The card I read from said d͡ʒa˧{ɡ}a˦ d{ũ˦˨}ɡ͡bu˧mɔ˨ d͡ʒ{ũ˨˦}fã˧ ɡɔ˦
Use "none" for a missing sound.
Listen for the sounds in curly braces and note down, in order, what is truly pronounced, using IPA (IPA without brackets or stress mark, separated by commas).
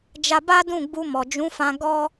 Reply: b, ũ˦˨, ũ˨˦